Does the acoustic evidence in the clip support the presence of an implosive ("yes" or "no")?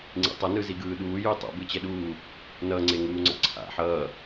yes